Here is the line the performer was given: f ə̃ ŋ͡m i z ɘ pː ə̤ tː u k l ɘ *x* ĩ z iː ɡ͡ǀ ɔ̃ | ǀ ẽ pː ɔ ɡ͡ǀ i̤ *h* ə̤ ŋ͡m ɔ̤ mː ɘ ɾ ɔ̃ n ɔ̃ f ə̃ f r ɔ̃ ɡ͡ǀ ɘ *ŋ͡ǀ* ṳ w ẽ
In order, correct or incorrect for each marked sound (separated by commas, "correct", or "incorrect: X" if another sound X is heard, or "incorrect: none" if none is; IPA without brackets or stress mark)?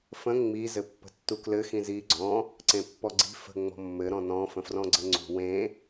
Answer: correct, incorrect: f, correct